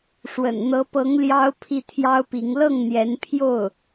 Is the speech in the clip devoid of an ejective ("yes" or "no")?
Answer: yes